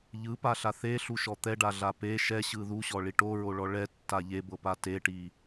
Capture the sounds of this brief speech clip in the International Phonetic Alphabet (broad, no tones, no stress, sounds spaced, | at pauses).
ʎ ɯ p a ɬ a θ e ɬ u ʃ ɔ t̪ ɛ ɖ a ɮ a p e ʃ ɛ ɕ ɯ ð u ɕ ɔ ɭ i ʈ o ɹ o ɭ ɔ ɭ ɛ tː a ʎ e b ɤ p a t e ʈ i